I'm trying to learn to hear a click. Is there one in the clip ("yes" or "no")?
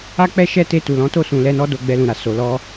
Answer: no